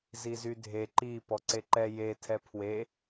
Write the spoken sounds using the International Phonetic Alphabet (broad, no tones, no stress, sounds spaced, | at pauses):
z i z y dʱ e ǃ i p ɔ ǀ e ǃ ɛ j e tʰ ɛ pʰ w e